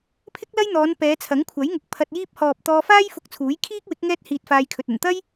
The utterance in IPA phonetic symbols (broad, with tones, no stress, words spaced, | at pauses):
pʰɪ˥k̚lɐ˥jn̪ɔː˨˧n pɛː˨˧t͡sʰɐ˨˥ŋkʷʰɐ˨˥jŋʊ˨k̚ pʰɐ˧t̚jiː˥p̚ hɔː˨p̚t̪ɔː˧faː˥j fʊ˧k̚t͡sʰuː˨˥j kʰiː˥k̚wɪ˨˥k̚ ŋɛː˥t̚hiː˧t̚faː˧jkʰɵ˨t̚ ɵ˨˩nt̪ɐ˥j